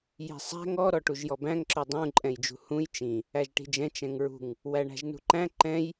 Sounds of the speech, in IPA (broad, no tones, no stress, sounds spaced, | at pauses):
j i̤ sˤ æ̤ ŋ ɔ ɾ ɔ ʈ u ʒ j ɔ b æ̃ ŋ ǁ ɵ dˤ ũ ǃʼ ɛ̃ j d͡ʒ ṳ h ũ j t͡ʃ ĩ | æ ʒ ʈ i̤ d͡ʒ ɛ̃ t͡ʃ ɛ̃ ŋ ɹ ṳ ŋ | w æ ɳ æ̤ ʒ n ṳ ǃ æ̃ ǃ ɛ̃ j